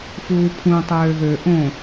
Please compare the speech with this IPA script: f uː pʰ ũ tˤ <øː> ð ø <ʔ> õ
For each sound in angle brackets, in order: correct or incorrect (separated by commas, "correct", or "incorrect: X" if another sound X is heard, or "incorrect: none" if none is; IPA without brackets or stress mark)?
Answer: correct, correct